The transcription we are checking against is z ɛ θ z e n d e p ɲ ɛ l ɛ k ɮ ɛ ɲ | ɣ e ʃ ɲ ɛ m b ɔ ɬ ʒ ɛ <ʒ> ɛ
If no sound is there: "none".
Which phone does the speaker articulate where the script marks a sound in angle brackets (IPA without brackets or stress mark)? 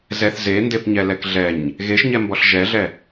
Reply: ɮ